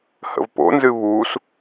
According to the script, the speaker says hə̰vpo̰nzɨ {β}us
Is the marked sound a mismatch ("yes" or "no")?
no